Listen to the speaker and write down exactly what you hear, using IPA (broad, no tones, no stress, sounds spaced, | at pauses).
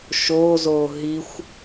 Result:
ʃ o z o ɦ i xʷ